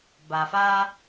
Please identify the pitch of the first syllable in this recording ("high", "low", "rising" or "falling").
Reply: low